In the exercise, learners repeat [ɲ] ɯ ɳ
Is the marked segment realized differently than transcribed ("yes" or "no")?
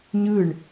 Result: no